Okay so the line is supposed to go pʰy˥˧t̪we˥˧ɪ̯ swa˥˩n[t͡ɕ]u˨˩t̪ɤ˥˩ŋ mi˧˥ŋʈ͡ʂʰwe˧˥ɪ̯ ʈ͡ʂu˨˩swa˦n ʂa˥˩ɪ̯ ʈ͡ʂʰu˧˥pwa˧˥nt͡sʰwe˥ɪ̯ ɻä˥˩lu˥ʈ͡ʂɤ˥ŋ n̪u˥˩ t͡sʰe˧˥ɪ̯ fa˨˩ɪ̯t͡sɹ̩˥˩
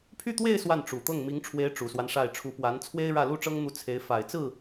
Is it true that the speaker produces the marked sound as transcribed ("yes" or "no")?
no